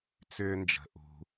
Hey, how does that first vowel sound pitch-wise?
low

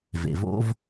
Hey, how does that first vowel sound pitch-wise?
low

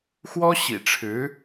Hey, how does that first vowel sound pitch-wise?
high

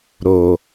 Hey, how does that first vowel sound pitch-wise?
low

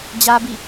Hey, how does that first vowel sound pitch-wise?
high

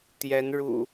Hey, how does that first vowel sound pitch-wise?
rising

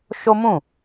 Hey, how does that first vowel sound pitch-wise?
high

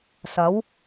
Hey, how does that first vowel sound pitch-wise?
rising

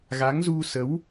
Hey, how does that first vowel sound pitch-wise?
rising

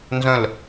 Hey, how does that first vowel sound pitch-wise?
falling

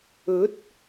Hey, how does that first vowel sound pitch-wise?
rising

